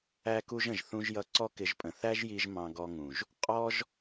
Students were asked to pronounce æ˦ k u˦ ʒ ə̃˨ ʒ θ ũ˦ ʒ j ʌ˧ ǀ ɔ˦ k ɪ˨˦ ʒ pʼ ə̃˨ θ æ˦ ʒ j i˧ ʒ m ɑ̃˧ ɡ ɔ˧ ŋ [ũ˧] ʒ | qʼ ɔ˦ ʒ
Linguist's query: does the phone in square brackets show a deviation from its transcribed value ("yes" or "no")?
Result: yes